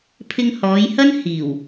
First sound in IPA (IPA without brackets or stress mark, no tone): pʰ